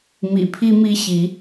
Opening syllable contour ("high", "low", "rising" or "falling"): low